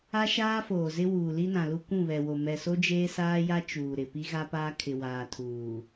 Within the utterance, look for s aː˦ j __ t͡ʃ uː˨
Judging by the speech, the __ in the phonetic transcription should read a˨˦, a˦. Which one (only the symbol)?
a˦